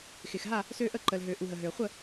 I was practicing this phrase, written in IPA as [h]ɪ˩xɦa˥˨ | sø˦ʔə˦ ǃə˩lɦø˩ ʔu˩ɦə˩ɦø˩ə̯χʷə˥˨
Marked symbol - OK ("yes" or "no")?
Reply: no